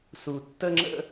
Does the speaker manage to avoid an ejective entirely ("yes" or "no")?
yes